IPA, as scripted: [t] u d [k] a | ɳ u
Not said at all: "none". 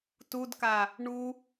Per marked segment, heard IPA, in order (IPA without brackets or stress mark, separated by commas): t, k